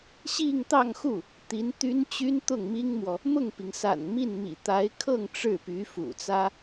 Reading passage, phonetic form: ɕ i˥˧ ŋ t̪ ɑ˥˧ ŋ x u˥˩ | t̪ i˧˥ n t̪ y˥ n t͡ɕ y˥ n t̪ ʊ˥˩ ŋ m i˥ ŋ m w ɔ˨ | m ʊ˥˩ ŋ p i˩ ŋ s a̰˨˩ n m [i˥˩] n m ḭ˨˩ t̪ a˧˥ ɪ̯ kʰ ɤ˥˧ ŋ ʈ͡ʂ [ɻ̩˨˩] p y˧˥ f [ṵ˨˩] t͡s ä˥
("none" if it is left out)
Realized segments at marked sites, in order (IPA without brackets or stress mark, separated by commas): i˥˩, ɻ̩˥˩, ṵ˨˩